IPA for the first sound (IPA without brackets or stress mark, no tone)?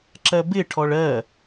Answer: ǁ